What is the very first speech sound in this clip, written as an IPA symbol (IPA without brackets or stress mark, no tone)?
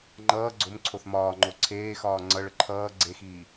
ŋ͡ǃ